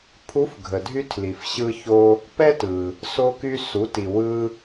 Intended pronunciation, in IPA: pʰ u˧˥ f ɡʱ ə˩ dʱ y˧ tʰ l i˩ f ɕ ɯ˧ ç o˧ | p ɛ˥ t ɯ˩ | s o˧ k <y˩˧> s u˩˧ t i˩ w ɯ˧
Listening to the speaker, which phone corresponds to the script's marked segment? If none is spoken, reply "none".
y˧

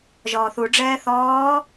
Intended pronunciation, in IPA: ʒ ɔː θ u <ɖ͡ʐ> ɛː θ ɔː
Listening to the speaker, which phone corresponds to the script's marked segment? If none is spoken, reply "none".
ɖ͡ʐ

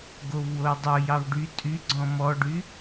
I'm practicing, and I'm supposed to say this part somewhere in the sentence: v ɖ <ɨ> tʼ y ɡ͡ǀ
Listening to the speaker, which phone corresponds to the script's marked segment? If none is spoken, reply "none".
y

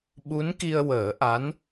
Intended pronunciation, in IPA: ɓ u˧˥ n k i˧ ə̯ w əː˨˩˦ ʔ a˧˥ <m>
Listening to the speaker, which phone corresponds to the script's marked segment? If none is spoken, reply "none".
n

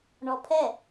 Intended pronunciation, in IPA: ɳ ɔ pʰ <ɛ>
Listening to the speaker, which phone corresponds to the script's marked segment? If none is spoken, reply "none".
ɛ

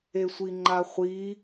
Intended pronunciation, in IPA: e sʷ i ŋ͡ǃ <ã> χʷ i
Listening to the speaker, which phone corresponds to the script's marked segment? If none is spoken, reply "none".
a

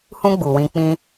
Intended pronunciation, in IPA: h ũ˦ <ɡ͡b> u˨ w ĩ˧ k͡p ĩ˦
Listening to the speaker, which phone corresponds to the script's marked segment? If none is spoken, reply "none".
ɡ͡b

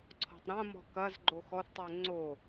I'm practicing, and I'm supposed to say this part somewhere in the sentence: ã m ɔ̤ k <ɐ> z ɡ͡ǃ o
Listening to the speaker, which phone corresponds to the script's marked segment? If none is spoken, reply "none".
ɐ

